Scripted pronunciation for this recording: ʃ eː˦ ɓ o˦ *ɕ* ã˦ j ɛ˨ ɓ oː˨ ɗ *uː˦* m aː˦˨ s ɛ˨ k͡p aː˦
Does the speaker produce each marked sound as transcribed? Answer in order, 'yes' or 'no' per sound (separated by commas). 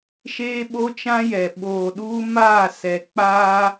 no, yes